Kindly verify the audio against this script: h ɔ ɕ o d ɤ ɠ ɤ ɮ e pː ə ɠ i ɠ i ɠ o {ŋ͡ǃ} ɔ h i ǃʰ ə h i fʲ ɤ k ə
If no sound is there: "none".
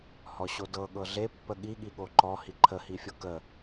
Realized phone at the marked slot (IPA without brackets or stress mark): ǃ